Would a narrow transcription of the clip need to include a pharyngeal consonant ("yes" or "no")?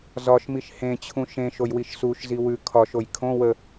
no